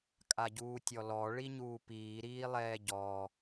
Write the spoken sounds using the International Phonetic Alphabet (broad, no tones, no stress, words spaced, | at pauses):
kʼaɟuːtʲɔlɔ ɭiɲuːpiː ɾiːlˠɛːɟɔ